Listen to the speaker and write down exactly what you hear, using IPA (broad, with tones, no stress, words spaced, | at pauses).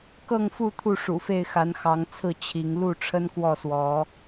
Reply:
kɤ˥˨ŋfu˥˨ t̪ʰu˥˨ʂṵ˨˩fe˥˨ɪ̯ xa˨˦nxɑ˨˦ŋt͡sʰɹ̩˥˨ t͡ɕʰi˨˦ŋ lu˥˨ʈ͡ʂʰə˦nkwɔ˥˨swɔ˨˦